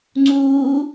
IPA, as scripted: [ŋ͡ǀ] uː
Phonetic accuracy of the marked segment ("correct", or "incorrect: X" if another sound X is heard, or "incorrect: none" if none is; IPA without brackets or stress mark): correct